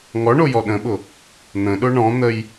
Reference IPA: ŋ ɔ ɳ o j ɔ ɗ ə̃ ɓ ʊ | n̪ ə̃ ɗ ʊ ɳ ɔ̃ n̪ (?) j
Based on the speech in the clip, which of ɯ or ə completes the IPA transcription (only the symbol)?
ə